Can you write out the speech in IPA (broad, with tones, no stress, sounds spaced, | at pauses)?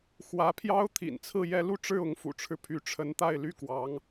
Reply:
x w ä˧˥ pʰ j ɑ˥ ʊ̯ t̪ʰ ḭ˨˩ n t͡sʰ ɹ̩˥˩ j ɛ˥ l u˥˧ ʈ͡ʂ ɻ̩˥˩ ʊ˧˥ ŋ f ṵ˨˩ ʈ͡ʂʰ ɻ̩˦ pʰ y˧˥ ʈ͡ʂʰ ə˧˥ n t̪ a˥˩ ɪ̯ l y˥ k w ɑ˧˥ ŋ